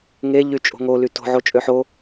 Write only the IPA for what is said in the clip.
ŋe ʎyt͡ʃʼo̤ŋo lyto̤ ʕot͡ʃʼøħo

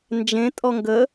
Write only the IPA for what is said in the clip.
nd͡ʒẽtʼɔ ŋɡə

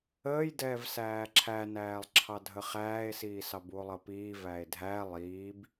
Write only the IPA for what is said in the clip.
əːjdɛːv sæːǁʰænæːlˠ ǁʰɑdʱəχæːe̯siː sɑbuo̯lˠʌpiː væe̯dʱæ lˠiːb

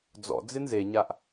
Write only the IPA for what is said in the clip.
d͡zɔ̰ d͡zɪnzeɲaʔ

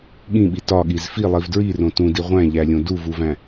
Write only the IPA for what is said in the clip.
ɠĩɓi tɒɠiz filˠiv dɹirõ tũdi ʁʷæ̃ʎælʲõ duvuvæ̃

